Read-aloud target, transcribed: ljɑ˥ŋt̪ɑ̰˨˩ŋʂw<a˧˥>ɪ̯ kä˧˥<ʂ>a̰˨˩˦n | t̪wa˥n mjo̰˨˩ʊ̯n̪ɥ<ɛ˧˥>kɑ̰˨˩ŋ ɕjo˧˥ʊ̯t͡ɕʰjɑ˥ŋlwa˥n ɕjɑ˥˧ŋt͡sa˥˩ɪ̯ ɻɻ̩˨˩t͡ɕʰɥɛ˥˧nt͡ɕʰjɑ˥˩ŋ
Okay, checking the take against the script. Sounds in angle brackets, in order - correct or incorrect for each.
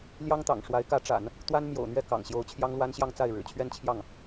correct, incorrect, incorrect

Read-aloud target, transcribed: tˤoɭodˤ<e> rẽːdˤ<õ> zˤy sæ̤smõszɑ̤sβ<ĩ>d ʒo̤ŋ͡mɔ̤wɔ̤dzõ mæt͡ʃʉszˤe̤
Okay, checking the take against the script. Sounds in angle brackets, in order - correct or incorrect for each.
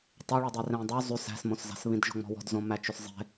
correct, incorrect, correct

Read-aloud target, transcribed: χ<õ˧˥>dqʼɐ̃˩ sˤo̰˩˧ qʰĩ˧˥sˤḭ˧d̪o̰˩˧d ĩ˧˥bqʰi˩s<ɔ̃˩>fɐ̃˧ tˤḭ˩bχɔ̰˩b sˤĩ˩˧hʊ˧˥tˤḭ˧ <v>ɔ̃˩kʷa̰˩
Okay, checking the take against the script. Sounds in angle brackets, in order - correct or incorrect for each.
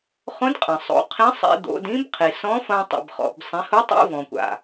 correct, incorrect, correct

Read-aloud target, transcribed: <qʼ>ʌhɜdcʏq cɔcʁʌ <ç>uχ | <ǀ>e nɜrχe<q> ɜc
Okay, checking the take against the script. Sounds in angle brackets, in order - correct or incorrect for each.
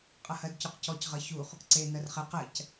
correct, correct, correct, correct

